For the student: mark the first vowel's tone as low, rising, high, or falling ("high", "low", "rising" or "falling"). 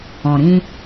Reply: low